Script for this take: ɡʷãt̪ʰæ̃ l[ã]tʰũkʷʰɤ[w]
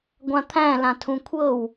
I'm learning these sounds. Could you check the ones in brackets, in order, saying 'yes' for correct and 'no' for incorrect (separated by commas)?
yes, yes